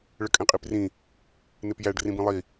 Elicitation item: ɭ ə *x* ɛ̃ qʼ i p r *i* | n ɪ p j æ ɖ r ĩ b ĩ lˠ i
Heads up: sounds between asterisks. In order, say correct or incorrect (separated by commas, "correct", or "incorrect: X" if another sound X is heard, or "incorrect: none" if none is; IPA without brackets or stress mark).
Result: incorrect: kʼ, incorrect: ĩ